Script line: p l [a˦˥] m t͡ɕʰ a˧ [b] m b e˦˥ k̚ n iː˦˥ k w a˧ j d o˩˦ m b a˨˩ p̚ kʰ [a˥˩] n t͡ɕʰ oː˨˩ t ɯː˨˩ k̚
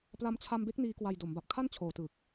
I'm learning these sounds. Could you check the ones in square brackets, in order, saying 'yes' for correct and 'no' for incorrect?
no, no, yes

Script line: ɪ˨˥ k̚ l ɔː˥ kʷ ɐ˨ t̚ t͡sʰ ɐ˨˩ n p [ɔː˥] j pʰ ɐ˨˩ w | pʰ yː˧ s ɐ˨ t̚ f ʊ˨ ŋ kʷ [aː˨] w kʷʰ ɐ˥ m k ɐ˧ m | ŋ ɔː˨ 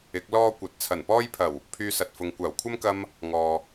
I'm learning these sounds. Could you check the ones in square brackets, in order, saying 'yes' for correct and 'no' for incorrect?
yes, no

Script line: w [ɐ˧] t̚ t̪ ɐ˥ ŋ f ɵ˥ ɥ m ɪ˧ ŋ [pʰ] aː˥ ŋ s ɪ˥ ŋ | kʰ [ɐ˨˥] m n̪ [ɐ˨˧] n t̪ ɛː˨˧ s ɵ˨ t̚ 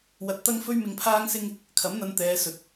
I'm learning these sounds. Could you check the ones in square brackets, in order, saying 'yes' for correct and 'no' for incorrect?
yes, yes, yes, yes

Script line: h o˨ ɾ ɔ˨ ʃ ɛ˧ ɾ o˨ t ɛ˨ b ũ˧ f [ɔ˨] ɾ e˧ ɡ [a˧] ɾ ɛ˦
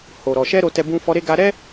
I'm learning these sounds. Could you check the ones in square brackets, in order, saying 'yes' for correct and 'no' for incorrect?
no, yes

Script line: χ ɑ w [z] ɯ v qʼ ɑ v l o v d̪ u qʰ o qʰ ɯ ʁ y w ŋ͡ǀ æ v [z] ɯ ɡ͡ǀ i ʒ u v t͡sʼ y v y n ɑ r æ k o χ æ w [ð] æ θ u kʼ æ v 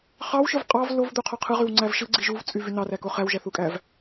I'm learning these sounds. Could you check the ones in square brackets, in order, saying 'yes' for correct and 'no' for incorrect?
no, no, no

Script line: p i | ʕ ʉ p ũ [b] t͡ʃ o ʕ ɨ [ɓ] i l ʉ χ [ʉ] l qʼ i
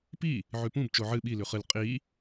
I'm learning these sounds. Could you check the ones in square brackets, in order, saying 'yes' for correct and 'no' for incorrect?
yes, yes, no

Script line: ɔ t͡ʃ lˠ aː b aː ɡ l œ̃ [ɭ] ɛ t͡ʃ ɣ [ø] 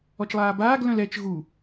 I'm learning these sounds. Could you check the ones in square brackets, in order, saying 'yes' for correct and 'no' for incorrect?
no, no

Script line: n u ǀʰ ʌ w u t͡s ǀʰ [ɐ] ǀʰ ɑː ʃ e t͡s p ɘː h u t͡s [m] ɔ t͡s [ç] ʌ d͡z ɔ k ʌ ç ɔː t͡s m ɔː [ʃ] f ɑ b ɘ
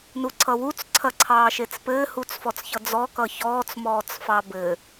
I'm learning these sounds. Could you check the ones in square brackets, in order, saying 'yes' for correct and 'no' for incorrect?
yes, no, yes, no

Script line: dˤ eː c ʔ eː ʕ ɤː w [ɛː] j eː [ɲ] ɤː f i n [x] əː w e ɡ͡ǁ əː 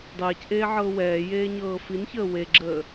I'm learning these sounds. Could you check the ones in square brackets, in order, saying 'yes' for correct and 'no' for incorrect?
yes, yes, no

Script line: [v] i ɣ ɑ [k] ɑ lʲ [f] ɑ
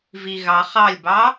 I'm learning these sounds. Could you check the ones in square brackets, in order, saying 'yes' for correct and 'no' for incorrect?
yes, no, no

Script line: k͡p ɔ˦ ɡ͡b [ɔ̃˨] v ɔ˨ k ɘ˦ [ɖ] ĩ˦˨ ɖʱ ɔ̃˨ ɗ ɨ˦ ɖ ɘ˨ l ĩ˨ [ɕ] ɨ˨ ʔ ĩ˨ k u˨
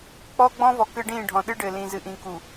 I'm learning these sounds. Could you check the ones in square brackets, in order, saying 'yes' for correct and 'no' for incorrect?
no, yes, no

